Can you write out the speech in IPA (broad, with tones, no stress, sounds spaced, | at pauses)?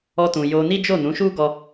ɔ˧ t ũ˨ j o˧ n i˦ d͡ʒ o˦˨ n ũ˨˦ ʃ u˦ ɡ ɔ˧